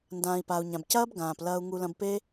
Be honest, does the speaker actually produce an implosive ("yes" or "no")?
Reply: no